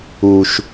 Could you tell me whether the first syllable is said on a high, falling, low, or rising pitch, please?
low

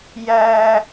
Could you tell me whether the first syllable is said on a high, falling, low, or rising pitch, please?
high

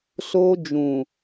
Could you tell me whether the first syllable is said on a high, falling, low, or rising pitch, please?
high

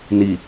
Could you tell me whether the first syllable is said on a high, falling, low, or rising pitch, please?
low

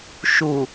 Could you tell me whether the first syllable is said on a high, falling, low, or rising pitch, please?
low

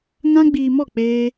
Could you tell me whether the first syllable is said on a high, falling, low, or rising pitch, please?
high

